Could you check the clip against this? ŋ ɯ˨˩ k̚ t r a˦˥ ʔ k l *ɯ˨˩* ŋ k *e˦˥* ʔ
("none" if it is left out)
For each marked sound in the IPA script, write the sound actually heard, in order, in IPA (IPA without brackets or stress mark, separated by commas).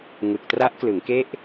ɯ˩˦, e˦˥